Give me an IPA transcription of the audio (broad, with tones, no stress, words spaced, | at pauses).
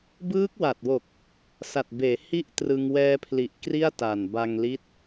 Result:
bɯː˦˥k̚wa˨˩t̚wo˨˩k̚ | sa˨˩t̚beː˩˦ hi˥˩ʔtrɯ˧ŋ wɛː˧pʰli˨˩ʔ kri˥˩a̯ta˨˩nba˧ŋ li˦˥t̚